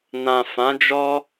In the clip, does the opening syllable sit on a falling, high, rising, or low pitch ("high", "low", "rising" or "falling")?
low